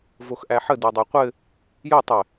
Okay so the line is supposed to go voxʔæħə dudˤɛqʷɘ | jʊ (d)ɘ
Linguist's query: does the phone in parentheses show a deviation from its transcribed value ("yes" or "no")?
yes